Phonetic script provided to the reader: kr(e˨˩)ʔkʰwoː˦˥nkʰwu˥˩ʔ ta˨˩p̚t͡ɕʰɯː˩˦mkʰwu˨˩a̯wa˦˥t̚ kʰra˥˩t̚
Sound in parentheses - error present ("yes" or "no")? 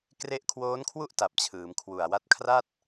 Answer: yes